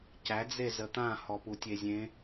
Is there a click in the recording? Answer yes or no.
no